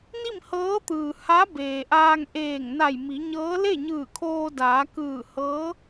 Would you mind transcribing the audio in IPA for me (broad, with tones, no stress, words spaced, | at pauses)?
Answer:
ni˥˨mhɤː˧˥t̪ɯː˩ ha˧˥ beː˩ʔaː˧ŋ ʔeː˧˩ŋna˧˩j mi˩˧ɲɤː˧˥ le˥˨ɲɯː˧˩kʰoː˧daː˩˧ kɯː˧˩hɤː˧˥